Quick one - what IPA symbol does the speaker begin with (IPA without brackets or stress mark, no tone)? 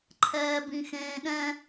ǃʰ